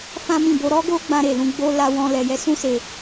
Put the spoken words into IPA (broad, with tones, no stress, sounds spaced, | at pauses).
f ã˦ m ĩ˦˨ b o˧ ɾ ɔ˦ ɡ o˦ ɡ͡b ã˧ ɾ e˨ l ũ˧ ɡ͡b o˧ l a˧ w ɔ̃˧ l ɛ˧ j ɛ˦ s ũ˦ s e˧